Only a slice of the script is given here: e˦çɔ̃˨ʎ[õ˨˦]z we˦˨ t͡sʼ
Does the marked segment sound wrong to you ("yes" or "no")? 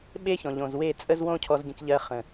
yes